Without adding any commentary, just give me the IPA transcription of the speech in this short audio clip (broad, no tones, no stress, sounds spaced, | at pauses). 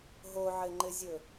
ɦ o ʕ ɘ ŋ͡ǃ ɘ zʲ ɵ